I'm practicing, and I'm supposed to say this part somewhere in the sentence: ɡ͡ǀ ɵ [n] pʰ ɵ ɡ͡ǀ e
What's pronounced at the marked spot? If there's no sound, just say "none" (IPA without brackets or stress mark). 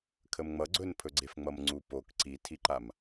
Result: n